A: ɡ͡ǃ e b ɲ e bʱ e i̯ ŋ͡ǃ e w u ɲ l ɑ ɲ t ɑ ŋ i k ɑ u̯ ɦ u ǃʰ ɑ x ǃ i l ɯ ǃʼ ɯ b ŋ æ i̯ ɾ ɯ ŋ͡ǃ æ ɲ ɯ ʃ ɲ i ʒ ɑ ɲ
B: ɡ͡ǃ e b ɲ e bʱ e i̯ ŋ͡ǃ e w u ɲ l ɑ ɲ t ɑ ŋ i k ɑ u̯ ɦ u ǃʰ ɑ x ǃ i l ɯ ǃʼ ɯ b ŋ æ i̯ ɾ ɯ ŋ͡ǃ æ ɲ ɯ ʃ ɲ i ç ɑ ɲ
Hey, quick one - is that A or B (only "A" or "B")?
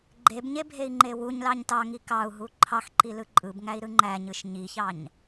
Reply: B